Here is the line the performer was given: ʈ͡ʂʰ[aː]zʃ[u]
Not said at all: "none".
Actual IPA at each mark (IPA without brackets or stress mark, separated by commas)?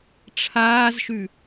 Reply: aː, ʉ